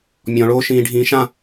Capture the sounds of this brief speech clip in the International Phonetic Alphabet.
mʲ ɔ̃ ɭ oː ʃ ĩː ɖʱ ĩː ʃ ã

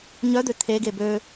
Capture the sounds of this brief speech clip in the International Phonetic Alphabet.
ɲ œ d̪ ø t̪ʰ e ɡ e b ø

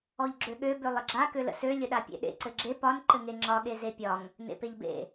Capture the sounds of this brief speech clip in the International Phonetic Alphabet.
ɔ ʎ ɡ͡ǁ ø ɠ ø b ø lˠ ə ɡ͡ǁ a k ø l ə̰ s ø lʲ ə ɗ a pʲ ḛ ɗ ḛ ǀ ɘ ɡ͡ǁ e p ɒ n ǃ ɘ ŋ e ŋ͡ǁ ɒ ɠ e z e pʲ ɒ ŋ | n ḛ p e ʎ b ḛ

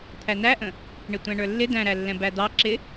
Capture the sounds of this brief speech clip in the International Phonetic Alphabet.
t̪ʰ æ n æ ʔ ə̃ | ɳ ɪ tʷ æ̃ ɳ ə˞ lː ɪ d æ̃ ɾ æ lː ɛ̃ b æ d̪ ɑ ǁ ɪ

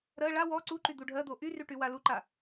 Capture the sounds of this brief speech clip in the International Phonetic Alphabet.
ɾ ɜ ɭ a w ɔ ǀ u ǃ y d̪ u ɖʱ ɜ d̪ o ʔ y r y ʈ y w a l u ǃ a

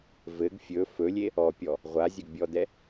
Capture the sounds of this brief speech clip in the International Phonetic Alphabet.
v ɘ ɡ fʲ ɵ f ɵ lʲ e | ɔ pʲ ɔ | ʁʷ a zʲ ɵ ɡ bʲ ɔ d ɛ

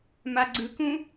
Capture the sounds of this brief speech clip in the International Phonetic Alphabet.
m a ɡ͡ǀ ɯ k ũ

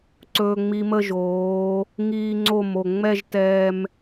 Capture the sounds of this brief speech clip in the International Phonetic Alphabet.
ǀ ɵː˧ ŋ͡m i˧ m ə˥˧ ʒ oː˩˧ | ŋ iː˧ ŋ͡ǀ o˧˩ m o˧˩ ŋ͡m ɛ˥˧ ʒ t ɛː˧ m

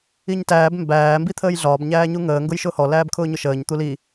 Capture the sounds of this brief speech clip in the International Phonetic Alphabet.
i ɲ t æː b m b æː m b i t̪ʰ əː j ɮ ɒː b ɲ æː ɲ u ŋ əː ŋ ɡ ʊ j ʃ ʊː h ɔ l æː b kʰ ʊː ɲ ʊ ʃ əː ɲ t̪ u l i

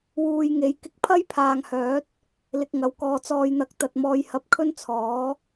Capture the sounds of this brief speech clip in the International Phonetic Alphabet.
w uː˨ j ŋ e˨˥ j k ɪ˧ k̚ pʰ ɐ˥ j pʰ aː˨ ŋ h œː˨˥ t̚ | l ɪ˧ k̚ ŋ ɐ˨˧ w k ɔː˧ t͡s ɔː˧ j n̪ ɐ˧ k̚ t̪ ɐ˧ t̚ m ɔː˧ j h ɐ˥ p̚ kʰ ɵ˥ n t͡sʰ ɔː˨˥

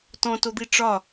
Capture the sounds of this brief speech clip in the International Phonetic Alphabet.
t ɔ̃ t o d̪ i ʈ͡ʂ ɒ

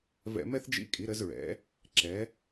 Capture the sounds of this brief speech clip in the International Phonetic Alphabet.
v ɛ̰˧ m ɛ˥ θ d͡ʒ ḭ˧˥ kʼ i˩˧ ɾ ə˩˧ z ɹ ɛ̰˩˧ | ǁ ɛ˩˧

